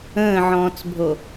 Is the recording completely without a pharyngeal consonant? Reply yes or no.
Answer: no